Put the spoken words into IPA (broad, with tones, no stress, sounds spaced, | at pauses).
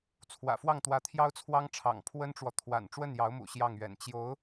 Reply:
t͡sʰ w ä̰˨˩ f w ɑ˥˩ ŋ t̪ w ä˧˥ t̪ʰ j ɑ˥ ʊ̯ t͡sʰ w ɑ˥ ŋ ʈ͡ʂʰ ɑ̰˨˩ ŋ pʰ w ə˥ n ʈ͡ʂ w ɔ˨ t̪ʰ w a̰˨˩ n ʈ͡ʂ w ə˥˩ n j ɑ˧˥ ʊ̯ m ṵ˨˩ ɕ j ɑ˥˩ ŋ ɥ ɛ̰˨˩ n t͡ɕ j o˧˥ ʊ̯